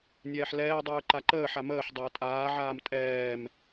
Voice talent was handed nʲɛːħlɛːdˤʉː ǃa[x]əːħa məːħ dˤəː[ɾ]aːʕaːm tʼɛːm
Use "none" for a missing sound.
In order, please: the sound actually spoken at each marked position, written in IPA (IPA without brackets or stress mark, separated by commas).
ǃ, tʼ